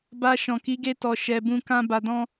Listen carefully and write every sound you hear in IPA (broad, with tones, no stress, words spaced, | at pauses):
ba˧ ʃɔ̃˨ki˨˦ɡe˧tɔ˨ ʃɛ˧bũ˦ kã˦ba˧dɔ̃˦